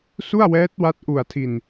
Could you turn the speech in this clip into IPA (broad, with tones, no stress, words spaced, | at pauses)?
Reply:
su˥˩a̯wɛː˦˥t̚wa˦˥t̚ ʔu˨˩a̯tʰi˨˩n